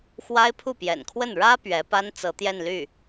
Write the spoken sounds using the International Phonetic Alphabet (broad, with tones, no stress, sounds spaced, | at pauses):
x w a˥ ɪ̯ pʰ u˥˩ p j ɛ̰˨˩ n kʰ w ə˥˩ n ɻ ä˥ p ɥ ɛ˧˥ p a˥ n t͡s ɤ˧˥ t̪ j ɛ˥˧ n l y˥˩